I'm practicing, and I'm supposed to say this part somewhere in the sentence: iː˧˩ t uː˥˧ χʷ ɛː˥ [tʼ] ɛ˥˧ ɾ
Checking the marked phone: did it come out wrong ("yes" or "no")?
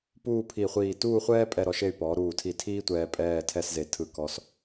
yes